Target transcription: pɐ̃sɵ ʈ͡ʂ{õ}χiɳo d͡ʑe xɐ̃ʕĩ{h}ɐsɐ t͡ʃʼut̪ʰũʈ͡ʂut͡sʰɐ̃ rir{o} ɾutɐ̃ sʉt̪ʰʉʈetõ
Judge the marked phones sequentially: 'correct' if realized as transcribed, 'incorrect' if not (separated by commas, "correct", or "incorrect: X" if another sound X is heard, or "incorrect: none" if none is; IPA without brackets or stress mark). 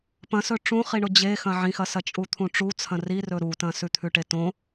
incorrect: ũ, incorrect: x, incorrect: ɵ